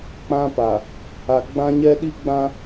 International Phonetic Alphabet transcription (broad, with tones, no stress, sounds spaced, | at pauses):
k͡p ã˦ p a˨ | a˨ ɡ͡b ã˦ ɲ ɛ˦ ɗ i˦ ɡ͡b ã˦